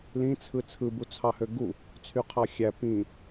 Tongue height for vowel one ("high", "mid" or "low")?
high